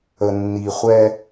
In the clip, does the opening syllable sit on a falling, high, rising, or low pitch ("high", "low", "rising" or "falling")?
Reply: low